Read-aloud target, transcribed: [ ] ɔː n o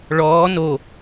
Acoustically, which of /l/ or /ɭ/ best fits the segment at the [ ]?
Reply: ɭ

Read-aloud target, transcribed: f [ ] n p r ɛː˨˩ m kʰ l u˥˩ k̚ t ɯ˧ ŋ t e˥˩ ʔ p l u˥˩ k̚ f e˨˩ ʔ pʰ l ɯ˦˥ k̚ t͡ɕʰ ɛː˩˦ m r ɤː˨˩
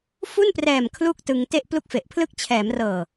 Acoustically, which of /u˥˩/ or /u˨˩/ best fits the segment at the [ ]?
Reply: u˥˩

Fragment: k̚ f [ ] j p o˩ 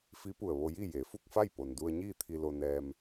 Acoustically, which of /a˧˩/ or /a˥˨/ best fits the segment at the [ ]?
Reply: a˥˨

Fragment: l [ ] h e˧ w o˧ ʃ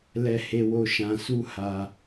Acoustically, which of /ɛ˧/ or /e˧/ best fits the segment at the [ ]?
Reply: ɛ˧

